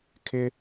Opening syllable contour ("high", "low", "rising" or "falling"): high